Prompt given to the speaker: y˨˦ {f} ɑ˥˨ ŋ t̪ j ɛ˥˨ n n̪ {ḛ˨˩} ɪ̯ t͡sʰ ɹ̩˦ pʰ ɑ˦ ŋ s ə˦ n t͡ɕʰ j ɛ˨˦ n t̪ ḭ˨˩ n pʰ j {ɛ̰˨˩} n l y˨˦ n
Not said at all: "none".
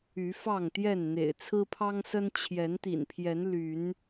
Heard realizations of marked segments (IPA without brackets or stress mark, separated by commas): f, ḛ˨˩, ɛ˨˦